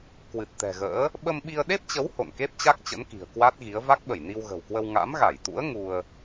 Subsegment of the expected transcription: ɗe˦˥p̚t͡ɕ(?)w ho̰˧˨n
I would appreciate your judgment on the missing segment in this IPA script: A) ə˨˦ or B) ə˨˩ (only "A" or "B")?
A